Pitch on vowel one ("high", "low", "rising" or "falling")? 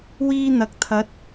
high